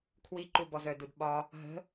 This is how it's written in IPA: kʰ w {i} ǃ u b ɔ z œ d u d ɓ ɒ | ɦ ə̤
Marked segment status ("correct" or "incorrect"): correct